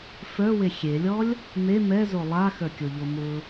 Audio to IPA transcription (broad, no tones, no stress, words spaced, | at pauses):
fə˞we xʲelʲɔlʲ | me mɛzo lˠaxə˞kʲoʎo mʊ